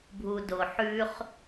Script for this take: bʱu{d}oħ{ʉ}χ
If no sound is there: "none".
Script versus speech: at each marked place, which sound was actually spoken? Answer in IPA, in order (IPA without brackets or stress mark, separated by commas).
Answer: d, ʉ